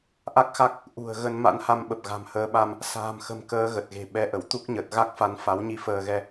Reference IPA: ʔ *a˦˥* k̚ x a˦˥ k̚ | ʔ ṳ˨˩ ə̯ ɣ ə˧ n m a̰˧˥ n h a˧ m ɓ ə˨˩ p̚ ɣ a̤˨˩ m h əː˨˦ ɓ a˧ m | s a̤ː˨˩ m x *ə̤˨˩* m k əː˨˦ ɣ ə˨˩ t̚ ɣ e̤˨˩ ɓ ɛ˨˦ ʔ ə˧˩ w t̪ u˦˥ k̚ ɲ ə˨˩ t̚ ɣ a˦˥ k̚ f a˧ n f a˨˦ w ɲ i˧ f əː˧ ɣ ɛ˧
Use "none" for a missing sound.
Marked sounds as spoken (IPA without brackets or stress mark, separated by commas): a˦˥, ə̤˨˩